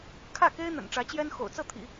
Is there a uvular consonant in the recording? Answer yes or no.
no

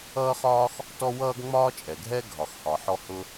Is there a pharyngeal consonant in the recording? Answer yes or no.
yes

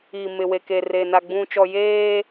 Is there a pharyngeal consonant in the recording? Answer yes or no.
no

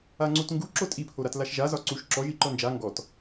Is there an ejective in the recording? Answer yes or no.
yes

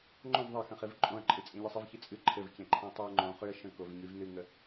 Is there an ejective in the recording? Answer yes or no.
yes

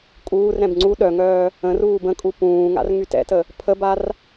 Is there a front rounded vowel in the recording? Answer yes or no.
yes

